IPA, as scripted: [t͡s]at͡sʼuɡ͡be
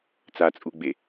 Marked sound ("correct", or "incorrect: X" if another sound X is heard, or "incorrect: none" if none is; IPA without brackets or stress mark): correct